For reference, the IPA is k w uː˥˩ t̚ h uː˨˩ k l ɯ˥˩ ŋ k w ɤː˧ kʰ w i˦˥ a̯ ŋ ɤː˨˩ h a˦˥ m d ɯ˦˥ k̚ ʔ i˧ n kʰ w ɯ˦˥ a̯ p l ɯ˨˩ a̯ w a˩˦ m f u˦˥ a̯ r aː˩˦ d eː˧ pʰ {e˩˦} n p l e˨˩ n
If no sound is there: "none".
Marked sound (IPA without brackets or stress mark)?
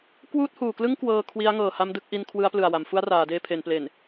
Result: e˩˦